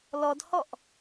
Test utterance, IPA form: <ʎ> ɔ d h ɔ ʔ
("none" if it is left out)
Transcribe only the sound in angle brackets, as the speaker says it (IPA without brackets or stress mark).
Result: l